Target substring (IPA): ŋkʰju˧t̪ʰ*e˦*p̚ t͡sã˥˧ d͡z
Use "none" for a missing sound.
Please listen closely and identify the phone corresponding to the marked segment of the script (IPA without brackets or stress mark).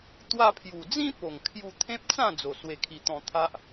ẽ˦